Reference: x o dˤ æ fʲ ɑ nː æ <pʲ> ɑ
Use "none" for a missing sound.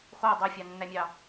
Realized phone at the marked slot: mʲ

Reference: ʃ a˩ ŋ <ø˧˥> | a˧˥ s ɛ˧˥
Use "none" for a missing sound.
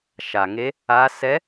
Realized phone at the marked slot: e˧˥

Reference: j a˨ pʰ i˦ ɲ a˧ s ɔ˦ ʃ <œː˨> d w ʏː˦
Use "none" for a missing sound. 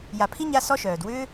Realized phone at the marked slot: œː˨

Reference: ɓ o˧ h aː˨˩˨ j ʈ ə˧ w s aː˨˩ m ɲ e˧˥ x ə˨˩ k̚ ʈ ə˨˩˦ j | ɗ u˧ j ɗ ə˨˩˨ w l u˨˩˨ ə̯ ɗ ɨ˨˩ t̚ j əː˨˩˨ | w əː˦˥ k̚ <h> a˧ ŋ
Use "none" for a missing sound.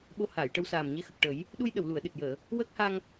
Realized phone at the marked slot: h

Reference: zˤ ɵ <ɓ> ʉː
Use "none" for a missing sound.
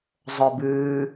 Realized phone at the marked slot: b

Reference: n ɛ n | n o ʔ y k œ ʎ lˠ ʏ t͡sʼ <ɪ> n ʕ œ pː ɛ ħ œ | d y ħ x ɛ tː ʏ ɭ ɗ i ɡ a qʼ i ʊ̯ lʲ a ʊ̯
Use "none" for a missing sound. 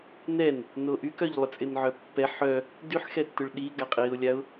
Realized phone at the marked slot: ɪ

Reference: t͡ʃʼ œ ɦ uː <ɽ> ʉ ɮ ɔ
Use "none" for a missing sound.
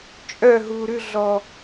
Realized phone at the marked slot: ɾ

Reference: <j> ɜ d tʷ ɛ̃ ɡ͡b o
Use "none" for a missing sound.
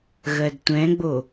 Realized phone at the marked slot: ɣ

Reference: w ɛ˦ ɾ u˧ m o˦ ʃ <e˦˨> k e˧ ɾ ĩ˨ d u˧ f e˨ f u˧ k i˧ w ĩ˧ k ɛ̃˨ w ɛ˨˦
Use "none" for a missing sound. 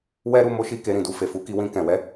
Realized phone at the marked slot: i˦˨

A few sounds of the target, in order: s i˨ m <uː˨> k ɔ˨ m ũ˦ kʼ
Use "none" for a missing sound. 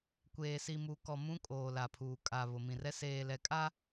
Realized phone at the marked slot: u˨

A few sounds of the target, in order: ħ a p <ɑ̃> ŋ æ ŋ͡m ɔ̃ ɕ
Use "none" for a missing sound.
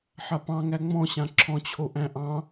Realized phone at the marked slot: ɑ̃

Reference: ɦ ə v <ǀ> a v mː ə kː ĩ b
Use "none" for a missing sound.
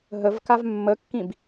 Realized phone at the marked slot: k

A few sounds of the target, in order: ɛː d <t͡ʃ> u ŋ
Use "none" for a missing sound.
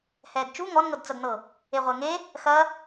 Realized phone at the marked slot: t͡ʃ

